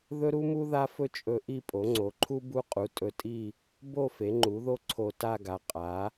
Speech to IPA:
ðɵ˥ɾu˥mu˥ ða˥fɵ˥ t͡ʃʼɵ˥ ʔi˥˧pʼo˩˥ŋ͡ǀo˩˥ǃʰu˥ bu˥ qʼu˩˥ tʼɵ˧tʼi˥˧ | bo˥˧ fe˩˥ŋ͡ǃu˩˥ðo˥ ǀʰo˧ta˥˧ɡa˩˥ qʼa˩˥

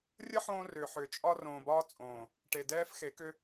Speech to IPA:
rʲə˦ħõː˧rʏː˨ħʏː˨ t͡ʃʼɒ˧rõː˨bɒː˧t͡sʼõː˨ | ʈe˨dɛː˦fxe˨˦kʏ˦

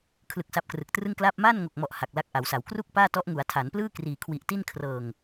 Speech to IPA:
kʰlɯ˨˩k̚ sa˦˥p̚krɯ˨˩k̚trɯ˥˩ŋklaː˥˩p̚ maː˥˩nŋo˨˩k̚mɔ˨˩ʔ ha˨˩k̚la˦˥k̚ʔa˩˦wsa˩˦w kru˥˩k̚ paː˥˩tɔ˦˥ʔ ŋu˩˦a̯tʰa˩˦nplɯː˥˩ kriː˨˩kʰwi˨˩ʔti˥˩n kʰrɤː˨˩ŋ

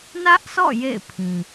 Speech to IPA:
nä˦ʔsɔ̰˦˨ jḛ˦˨ɪ̯pʰĩ˨

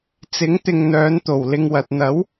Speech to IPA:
t͡sɪ˨˥ŋ t̪ɪ˨ŋn̪œː˨˧n t̪o˨˩wlɪ˧ŋwɐ˨t̚ n̪ɐ˨˥w

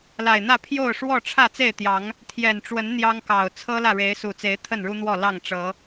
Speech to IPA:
la˨˩ɪ̯n̪ä˥˨ pʰjo˥˨ʊ̯ ʂwɔ˥˨ʈ͡ʂʰä˥˨ t͡se˥˨ɪ̯t̪jɑ˨˦ŋ | t̪ʰjɛ˨˩nʈ͡ʂwə˨˦n n̪jɑ˦ŋkɑ˨˩ʊ̯ t͡sʰɤ˦ lä˥˨ɻe˨˦ɪ̯su˨˩t͡se˨˦ɪ̯ t̪ʰə˥˨nɻu˦n̪wɔ˥˨ lɑ˥˨ŋʈ͡ʂɤ˨˦

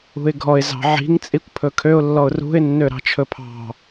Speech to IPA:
ṳɪ̯ɡʱɔɪ̯ zɑ̤ʕi̤ŋ t͡sʼikʷpʰɵkʰøʊ̯ lːɔʊ̯rṳɪ̯ nːøɾɑ̤t͡ʃʰɵpʰɑ̤

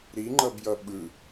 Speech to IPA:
ɾiŋ͡ǃʌbjʌ ɓɯ

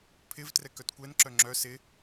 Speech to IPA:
pʰɪv trɛkœtkʷɛnǁœ ŋ͡ǁœ sɪ

